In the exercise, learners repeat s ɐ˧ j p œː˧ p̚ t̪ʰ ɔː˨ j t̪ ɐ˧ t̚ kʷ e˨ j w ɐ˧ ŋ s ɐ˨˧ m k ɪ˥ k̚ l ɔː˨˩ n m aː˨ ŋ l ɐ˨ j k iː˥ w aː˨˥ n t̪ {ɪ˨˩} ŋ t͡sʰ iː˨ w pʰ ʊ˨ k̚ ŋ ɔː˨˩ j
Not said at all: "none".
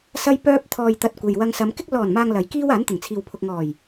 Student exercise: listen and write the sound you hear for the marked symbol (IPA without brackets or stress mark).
ɪ˨˩